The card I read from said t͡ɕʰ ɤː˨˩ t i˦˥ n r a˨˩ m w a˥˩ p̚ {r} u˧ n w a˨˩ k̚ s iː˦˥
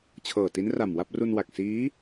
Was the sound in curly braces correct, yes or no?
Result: yes